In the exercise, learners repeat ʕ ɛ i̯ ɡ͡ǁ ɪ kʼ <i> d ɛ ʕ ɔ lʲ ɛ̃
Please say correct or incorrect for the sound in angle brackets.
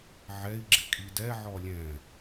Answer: correct